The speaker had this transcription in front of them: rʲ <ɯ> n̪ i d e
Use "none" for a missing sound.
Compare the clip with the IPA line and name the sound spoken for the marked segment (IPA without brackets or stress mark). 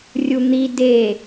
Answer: u